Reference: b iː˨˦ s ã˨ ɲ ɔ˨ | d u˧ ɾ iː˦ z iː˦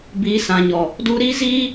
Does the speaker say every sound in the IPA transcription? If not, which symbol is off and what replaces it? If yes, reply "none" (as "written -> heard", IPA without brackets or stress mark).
none